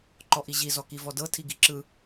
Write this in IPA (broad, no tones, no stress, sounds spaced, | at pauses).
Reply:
ǃ ɔ ʔ i ʑ i z ɔ k i v ɔ d ɤ tʰ i ɡ i ǁ ɯ